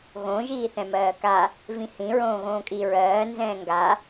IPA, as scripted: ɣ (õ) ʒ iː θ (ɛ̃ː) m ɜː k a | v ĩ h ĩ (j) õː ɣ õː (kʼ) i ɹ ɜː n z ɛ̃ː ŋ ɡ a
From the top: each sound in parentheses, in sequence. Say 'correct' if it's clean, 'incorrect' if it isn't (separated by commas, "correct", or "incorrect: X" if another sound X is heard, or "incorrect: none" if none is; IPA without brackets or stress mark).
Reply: correct, incorrect: ɛ̃, incorrect: ɹ, correct